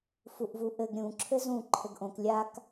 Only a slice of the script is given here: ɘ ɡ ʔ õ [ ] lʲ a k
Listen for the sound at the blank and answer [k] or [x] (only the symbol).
k